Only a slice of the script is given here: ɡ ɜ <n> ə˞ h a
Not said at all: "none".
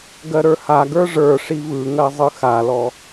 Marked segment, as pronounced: ɾ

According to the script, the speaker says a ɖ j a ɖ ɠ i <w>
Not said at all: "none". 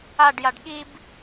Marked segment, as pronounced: b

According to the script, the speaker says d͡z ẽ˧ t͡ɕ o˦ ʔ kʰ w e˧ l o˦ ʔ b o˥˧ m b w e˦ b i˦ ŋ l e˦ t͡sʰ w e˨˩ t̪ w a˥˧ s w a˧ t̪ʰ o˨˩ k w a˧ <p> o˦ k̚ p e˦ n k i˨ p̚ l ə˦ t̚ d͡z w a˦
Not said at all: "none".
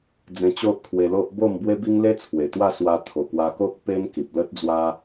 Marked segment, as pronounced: k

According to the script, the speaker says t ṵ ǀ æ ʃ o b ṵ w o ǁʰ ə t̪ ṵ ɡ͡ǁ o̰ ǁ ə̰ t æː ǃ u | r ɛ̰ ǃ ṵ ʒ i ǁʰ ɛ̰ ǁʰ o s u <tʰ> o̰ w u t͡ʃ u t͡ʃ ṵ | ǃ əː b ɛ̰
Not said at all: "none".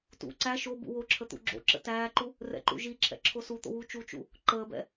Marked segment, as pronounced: t̪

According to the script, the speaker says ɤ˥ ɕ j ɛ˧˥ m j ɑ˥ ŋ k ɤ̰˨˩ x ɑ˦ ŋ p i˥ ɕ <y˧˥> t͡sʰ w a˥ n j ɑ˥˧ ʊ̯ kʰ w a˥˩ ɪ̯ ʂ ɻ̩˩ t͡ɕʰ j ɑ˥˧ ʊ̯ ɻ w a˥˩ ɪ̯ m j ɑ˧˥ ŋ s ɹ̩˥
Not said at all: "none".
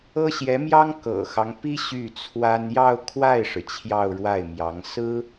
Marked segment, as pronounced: y˥˩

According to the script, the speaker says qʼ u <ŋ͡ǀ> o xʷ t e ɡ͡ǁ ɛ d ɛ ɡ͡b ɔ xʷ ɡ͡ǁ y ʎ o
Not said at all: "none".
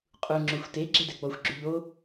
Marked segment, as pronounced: ŋ͡ǁ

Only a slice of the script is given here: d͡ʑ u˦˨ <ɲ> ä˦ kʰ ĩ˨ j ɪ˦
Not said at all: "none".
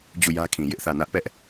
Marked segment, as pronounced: j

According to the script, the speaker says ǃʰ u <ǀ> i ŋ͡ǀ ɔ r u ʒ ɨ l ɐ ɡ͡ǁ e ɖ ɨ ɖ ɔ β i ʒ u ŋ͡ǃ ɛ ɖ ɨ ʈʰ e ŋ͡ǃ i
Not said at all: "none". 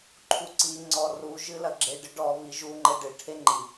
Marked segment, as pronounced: ǀ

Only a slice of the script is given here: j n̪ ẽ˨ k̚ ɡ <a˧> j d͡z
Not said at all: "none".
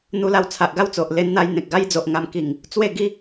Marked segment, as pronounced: a˦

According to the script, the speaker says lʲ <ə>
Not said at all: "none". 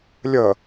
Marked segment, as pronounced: ə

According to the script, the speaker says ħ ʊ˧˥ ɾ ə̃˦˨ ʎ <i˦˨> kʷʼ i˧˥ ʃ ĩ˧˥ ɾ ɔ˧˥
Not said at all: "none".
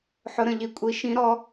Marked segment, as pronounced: i˦˨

